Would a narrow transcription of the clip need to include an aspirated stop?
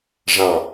no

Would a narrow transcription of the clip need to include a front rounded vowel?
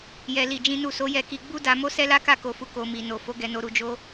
no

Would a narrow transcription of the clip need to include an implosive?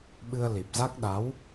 yes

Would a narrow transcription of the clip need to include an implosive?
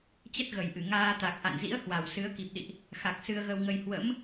yes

